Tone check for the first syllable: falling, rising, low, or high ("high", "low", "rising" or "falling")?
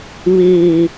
low